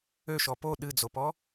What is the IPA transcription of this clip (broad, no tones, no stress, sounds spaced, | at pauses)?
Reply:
ø ʃ ɔ p o ɗ ɨ d͡z o p ɔ